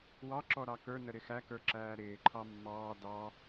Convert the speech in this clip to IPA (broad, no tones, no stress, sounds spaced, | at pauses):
w ɑ ǁ ɔ ɾ ɑ k ə˞ n ə ɾ ɪ x æ k ə˞ ǁ æː ɾ ɪː ǃʰ ɑ mː ɑː d ɑ